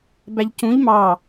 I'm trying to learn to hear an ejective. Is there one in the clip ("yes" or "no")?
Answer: no